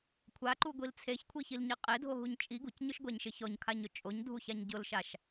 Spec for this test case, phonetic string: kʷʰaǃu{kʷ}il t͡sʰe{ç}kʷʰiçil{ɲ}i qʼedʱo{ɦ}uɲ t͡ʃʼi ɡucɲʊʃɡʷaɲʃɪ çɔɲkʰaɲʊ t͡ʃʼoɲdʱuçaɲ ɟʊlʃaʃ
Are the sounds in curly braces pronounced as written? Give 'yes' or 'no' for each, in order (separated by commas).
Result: no, yes, yes, yes